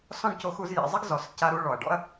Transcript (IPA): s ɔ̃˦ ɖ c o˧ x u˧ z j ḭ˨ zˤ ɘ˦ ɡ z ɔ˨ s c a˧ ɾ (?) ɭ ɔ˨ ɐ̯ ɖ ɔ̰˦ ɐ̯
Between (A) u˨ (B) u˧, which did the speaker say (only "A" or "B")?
B